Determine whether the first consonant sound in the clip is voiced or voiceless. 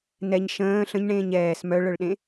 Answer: voiced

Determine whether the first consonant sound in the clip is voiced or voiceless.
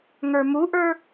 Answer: voiced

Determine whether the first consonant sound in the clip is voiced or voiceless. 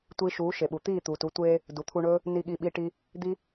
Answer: voiceless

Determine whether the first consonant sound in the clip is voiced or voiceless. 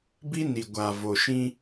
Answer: voiced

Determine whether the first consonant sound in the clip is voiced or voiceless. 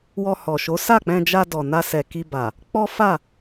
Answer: voiced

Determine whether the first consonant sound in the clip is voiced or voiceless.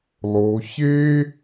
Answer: voiced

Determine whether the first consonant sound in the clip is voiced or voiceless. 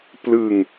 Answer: voiceless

